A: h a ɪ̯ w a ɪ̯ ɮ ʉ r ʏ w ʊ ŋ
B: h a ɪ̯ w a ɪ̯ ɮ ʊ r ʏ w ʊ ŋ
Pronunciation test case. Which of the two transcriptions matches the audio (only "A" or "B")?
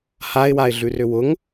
A